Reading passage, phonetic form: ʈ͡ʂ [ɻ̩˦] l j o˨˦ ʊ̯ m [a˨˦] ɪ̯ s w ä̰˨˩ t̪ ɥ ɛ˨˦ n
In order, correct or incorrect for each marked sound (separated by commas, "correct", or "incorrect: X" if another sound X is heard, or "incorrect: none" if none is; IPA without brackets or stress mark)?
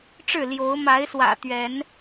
incorrect: ɻ̩˥˨, correct